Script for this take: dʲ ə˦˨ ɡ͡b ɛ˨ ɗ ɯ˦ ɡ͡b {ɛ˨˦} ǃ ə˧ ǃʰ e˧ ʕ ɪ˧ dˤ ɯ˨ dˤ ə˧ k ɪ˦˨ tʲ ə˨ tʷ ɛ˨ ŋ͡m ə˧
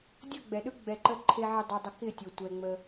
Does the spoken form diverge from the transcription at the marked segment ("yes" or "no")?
yes